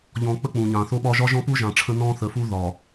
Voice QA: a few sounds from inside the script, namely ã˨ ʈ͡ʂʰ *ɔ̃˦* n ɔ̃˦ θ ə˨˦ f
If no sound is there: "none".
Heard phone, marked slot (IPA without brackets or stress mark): ə̃˦